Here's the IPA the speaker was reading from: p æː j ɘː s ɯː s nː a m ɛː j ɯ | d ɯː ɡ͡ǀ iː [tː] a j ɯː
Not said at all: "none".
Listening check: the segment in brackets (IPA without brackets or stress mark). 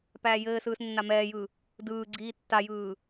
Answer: tː